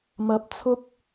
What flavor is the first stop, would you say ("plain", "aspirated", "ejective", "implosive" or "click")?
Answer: plain